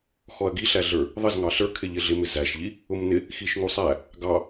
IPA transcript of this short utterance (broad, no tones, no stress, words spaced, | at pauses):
xɔɐ̯ɡiɬæɮə˞ | ðˤɪzŋɑ ɬə˞kʰɪ ʎɪɮɪmɪ zæʃʎi | ʊmnɪ | xiʃŋusˤæ | ɡɑ